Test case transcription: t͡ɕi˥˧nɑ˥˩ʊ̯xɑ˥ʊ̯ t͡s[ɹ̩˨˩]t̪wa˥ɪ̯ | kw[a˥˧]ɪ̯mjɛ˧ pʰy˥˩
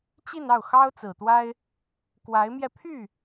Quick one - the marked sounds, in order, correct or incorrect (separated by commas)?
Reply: correct, incorrect